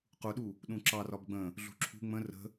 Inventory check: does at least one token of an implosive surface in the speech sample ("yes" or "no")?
yes